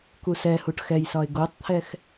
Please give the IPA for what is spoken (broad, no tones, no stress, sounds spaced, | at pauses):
k u s ɛ h u ʈ x ɛ j s ɒ ɪ̯ ɡ o tˤ t̪ʰ ɛ x